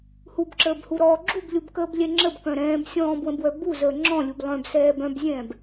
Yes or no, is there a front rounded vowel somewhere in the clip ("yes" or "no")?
yes